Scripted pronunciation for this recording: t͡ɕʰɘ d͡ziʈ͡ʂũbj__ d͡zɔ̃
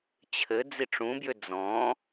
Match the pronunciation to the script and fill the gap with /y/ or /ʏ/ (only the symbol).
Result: ʏ